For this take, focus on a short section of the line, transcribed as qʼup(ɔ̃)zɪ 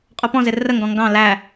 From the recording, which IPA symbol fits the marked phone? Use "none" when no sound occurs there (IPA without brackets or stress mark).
ɔ̃